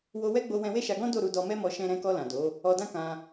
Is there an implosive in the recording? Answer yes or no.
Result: no